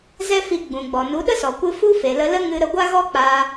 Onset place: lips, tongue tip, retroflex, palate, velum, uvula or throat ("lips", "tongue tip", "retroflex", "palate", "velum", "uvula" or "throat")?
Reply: tongue tip